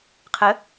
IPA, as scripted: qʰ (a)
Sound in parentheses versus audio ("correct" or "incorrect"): incorrect